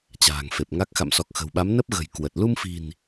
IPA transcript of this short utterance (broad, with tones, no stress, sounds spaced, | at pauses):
t͡ɕ a̤ː˨˩ ŋ f e˨˩ p̚ ŋ a˦˥ k̚ x a̰˧˨ m s ɔ˨˩ k̚ x ə̤˨˩ w ɓ a˨˦ m n ə˦˥ p̚ ɣ ə̤˨˩ j k w ə˨˩ t̚ l u˧ m f i̤˨˩ n